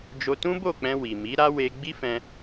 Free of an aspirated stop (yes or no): yes